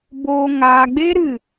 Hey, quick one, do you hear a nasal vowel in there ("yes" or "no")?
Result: no